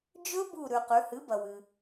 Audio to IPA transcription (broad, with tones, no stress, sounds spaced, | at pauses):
d͡ʒ ɵ˦˥ b u˧˩ ɾ ʉ˩ q ʉ˩˧ h ɨ˩˥ b ɐ˩ w ɨ˩